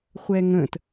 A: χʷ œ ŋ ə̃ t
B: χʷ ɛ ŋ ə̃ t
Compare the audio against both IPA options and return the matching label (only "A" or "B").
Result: B